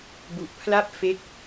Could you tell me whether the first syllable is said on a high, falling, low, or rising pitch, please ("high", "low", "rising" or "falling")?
low